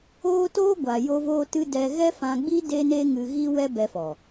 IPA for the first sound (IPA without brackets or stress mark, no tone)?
oː